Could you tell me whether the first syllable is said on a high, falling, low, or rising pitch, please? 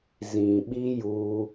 low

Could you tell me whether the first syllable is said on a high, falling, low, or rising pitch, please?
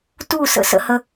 falling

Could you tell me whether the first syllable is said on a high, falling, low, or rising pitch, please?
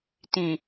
low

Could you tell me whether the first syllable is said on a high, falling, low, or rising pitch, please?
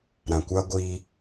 low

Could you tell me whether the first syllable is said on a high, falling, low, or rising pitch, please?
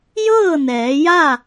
falling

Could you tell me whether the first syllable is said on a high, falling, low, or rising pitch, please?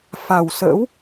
low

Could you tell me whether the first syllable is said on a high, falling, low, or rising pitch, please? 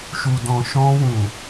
low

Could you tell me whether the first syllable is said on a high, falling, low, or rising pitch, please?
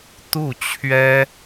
falling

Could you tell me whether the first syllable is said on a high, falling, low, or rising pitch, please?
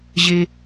low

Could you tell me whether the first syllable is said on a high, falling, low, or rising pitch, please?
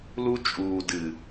high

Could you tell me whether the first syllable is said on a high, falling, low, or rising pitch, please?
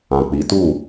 low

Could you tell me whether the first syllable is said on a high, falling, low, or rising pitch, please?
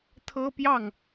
high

